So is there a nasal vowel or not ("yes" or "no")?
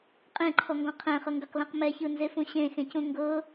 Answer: yes